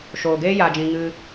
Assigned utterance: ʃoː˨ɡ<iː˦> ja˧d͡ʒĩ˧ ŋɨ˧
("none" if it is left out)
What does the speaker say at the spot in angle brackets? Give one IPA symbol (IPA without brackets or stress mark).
eː˦